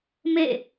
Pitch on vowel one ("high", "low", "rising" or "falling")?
falling